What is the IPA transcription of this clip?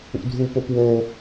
ṵ dʱ u p o p w o

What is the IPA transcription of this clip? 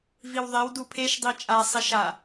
v i w ðˤ e w d u pʰ e ʃ dˤ i t͡ʃʼ a sˤ i ʃ a

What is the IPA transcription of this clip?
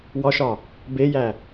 w ɒ ʃ ɒ | b e j æ

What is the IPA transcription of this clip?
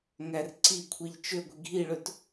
ŋ æ r ǀ i kʷʰ i ʎ t͡ʃ ø ɡʷ i ɡʱ i ɭ ɵ t

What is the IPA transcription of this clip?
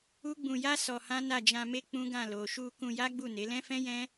u˦ ɡ͡b ũ˧ j a˦ s ɔ˧ h ã˦ n a˦˨ d͡ʒ ã˧ m e˦ k͡p ũ˦ ɡ ã˦˨ l o˨ ʃ u˧ k ũ˧ j a˦ ɡ͡b u˦˨ n e˨˦ l ɛ̃˦ f ɛ̃˦ j ɛ̃˦

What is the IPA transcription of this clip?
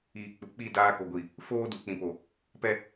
iː˨ k͡p u˨ k͡p i˦˨ d aː˦ k o˨ ɡʷ i˨ | f oː˦ d u˨ k͡p ĩ˨ p o˨ | p ɛ˦

